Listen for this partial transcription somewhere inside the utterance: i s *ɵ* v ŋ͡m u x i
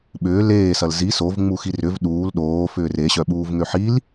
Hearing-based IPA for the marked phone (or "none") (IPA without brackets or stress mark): o